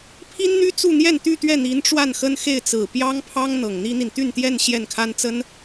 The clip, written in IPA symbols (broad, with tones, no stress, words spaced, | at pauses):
pʰi˥nn̪y˥ t͡su˥˧n̪jɛ˥˧nt̪y˥˧ t̪ɥɛ˥˩n̪i˧˥n ʈ͡ʂwa˥˩nxə˥nxe˥˩ɪ̯ t͡sɹ̩˨˩pjɑ˥ŋpʰɑ˥ŋ n̪ɤ˨˩ŋn̪i˥n̪i˨n t̪y˥˧nt̪jɛ˥˧n ɕjɛ˥˩nkʰa˥nt͡sə˥n